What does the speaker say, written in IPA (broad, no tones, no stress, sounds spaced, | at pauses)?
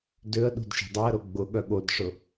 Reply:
d ʏ ə̯ ɗ ṳ d ʃ e̤ dˤ e ə̯ ɾ o ɡ͡b ʊ ɠ œ ɠ o d ʂ ʊ